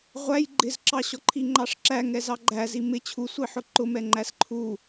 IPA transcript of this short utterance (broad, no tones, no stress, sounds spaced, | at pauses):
ʁʷ æ j ɡ͡ǃ ɪ z ǁ ɑ ɕ ɔ ǃʰ i ŋ͡ǃ ɑ ʂ ǁ æ ŋ ɛ z ɑ ɡ͡ǃ æ z i m ɪ t͡ɕʰ u sʷ i ħ ʊ ǃ ʊ m ɛ ŋ͡ǃ æ s ǃʰ u